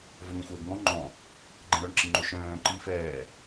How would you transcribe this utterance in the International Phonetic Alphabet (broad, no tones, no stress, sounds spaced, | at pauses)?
v œ n̪ ɛ̃ xʷ ɛː ɡ ŋ ɔ̃ ŋ͡ǃ ɔ̃ | ɡ͡ǃ ɛ̃ ɾ œ ɳ ǁ i ŋ͡ǃ ɵ ʃ œ̃ː ǃ i f ɛː